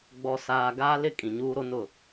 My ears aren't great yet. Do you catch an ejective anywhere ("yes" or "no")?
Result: yes